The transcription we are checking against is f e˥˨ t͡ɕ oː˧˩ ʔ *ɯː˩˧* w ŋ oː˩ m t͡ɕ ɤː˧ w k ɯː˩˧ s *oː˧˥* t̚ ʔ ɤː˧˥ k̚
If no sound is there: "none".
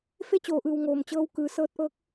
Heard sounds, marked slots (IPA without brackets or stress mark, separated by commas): ɯː˧˩, ɤː˧˥